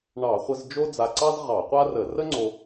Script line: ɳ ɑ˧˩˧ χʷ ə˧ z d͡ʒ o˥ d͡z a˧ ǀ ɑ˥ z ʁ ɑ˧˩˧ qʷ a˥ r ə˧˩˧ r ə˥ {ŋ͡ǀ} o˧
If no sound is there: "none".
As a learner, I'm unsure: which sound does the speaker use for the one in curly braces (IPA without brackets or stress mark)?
ŋ͡ǀ